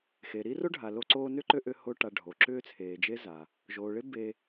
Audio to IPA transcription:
xe˩ɾi˦ro˦ɖʱa˩ lo˦ǀoː˦nʏ˥ǃø˦ ʔʏ˦ho˦ ʈa˨ɖʱo˩ǁʏː˦ t͡sʰeː˩d͡ʒe˦ za˩ | ʒoː˩ɭe˦ be˨

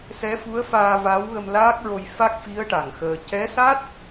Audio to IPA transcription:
sɛ˧˥fu˧˥ə̯faː˧ va˧˥w ɣə˧mlaː˦˥k̚ɹo˧j fa˦˥k̚fi˧˥ə̯ ʈa˨˩ŋxəː˧ cɛ˧˥sa˦˥t̚

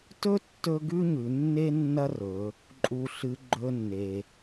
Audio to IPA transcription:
tɵ˥ tːɵ˥ ɡʉ˥ɲʉ˩˧nːe˥ nːɐ˥rɵ˩˧ | ǃʼu˩ɬɨ˩˧ ɡ͡ǃɵ˧nːe˩

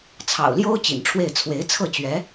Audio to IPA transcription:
t͡sʰɑ̰˨˩ʊ̯ljo˥ʊ̯ t͡ɕḭ˨˩nʈ͡ʂʰwe˥˩ɪ̯ t͡sʰwe˧˥ɪ̯t͡sʰɤ˥˩t͡ɕɥɛ˧˥

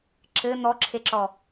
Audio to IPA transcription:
ǁɘ n̪ɔǁʰeǁɔ

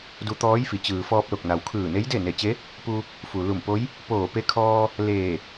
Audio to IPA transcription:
du˧˥ t̪ɔː˧˥jfi˩˧ t͡ɕɯː˩ fɔː˧p̚lo˧˩k̚na˩wkʰɯː˧˩ ne˧˥jde˥˨ne˧˩t͡ɕe˧˥ | pu˧ | fu˩lu˧˩mpo˧˥j | poː˧˩pe˧˥kʰɔː˧ | leː˧˩

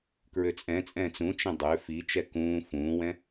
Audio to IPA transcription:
kɹøt͡sʼɛ̃t͡sʼɛ̃ːt͡s ũt͡ʃɛ̃ dˤø fit͡ʃɛ kũː fũːwɛ̃

